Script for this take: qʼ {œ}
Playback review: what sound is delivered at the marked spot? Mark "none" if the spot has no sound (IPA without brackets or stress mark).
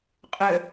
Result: œ